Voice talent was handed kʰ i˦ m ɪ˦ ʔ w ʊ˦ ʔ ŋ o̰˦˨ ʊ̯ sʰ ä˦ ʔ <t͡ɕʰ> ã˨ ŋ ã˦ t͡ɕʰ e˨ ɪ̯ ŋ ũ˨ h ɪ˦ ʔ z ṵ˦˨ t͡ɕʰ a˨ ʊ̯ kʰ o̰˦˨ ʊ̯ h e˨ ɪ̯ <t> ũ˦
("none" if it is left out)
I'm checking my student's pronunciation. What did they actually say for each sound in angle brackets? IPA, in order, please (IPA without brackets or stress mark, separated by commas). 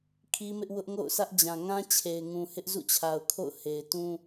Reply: d͡ʑ, t